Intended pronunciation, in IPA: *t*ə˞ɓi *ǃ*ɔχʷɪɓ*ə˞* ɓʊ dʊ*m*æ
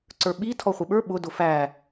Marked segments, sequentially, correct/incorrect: incorrect, incorrect, correct, incorrect

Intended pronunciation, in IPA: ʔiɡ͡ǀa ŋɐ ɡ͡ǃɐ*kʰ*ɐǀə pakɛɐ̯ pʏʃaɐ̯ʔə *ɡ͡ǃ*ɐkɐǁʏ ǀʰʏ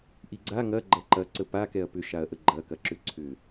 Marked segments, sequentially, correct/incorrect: incorrect, correct

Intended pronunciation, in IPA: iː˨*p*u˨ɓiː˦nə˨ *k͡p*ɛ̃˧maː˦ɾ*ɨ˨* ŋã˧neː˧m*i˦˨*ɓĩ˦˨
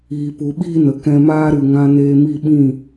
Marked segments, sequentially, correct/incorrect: correct, incorrect, correct, correct

